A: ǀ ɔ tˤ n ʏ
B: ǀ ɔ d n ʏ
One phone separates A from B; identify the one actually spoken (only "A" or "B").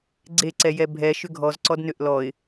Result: B